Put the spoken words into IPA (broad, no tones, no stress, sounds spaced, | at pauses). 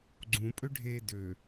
ɡ͡ǀ ũ pʼ ø ɖʱ e d ø